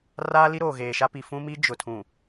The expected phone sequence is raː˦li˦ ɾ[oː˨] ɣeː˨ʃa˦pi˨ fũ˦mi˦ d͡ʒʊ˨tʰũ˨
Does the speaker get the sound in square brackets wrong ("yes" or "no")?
no